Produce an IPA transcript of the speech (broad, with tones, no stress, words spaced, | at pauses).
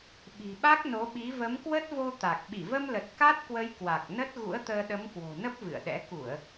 ɓi̤˨˩ɓa˦˥k̚no˨˦ ɓi˨˦ və˨˦mkwə˦˥t̚vo˧ t̪a˨˩k̚ ɓi˧˩və˧mlə˨˩t̚ ka˦˥t̚kwə˨˦j kwa˨˩k̚ nə˦˥t̚ ɣṵ˧˥ə̯t̪əː˧ ɗə˨˦mkwo̤˨˩nə˦˥p̚ vɨ̰˧˨ə̯ɗɛ̰˧˥ ku˧˩˨ə̯